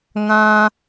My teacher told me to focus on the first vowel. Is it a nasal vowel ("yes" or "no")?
yes